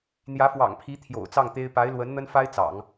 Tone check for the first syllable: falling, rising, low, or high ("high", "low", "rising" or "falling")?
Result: rising